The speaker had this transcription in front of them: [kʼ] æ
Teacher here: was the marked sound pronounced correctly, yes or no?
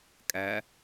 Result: yes